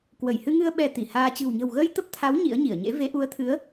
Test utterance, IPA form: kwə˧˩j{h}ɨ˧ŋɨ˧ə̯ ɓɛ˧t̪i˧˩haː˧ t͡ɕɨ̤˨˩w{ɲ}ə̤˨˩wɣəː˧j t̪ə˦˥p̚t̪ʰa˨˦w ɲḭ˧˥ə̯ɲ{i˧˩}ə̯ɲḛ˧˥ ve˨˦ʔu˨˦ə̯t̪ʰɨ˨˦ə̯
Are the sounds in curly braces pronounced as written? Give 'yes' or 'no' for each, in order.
yes, yes, yes

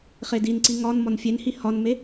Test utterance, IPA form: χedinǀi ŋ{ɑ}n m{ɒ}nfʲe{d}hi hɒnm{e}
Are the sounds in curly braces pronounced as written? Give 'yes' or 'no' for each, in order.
no, yes, no, yes

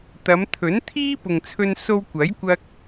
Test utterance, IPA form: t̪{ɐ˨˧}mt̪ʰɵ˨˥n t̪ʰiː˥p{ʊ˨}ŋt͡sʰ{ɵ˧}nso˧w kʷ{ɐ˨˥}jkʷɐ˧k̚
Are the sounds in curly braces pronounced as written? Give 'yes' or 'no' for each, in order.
yes, yes, yes, yes

